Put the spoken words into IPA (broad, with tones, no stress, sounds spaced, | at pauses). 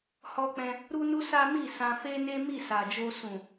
h ɔ˧ k͡p ɛ̃˧ | ɾ u˦ n u˦ s a˦ m i˦˨ s ã˧ f e˦ n e˦ m i˦˨ s a˨ d͡ʒ o˧ s ũ˨